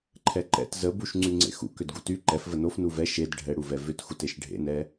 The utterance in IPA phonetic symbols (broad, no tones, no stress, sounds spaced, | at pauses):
ǃʰ ɛ ǃ ɛ̰ t z ə b u ʃ ŋ͡ǀ y ŋ͡ǀ ḛ x ṵ k ʏ d ɡ u t y ǃ ɛ f v ə n o f n u v ɛ ʃ e d ɖʱ ɛ ɽ u v ɛ v ʏ t x u t e ʃ ɖʱ ḛ n ɛ